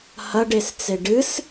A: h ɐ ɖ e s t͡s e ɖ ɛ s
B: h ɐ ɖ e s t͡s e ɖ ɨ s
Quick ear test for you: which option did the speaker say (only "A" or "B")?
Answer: B